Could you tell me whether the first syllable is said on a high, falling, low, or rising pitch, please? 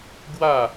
falling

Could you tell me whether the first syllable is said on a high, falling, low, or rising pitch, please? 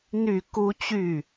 falling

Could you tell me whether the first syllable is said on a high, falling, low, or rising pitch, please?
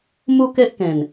high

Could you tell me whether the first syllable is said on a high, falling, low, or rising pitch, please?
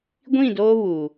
falling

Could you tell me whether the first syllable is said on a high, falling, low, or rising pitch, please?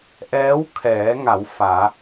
rising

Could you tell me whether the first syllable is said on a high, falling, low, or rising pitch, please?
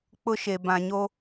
high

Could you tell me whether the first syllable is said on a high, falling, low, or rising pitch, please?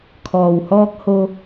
low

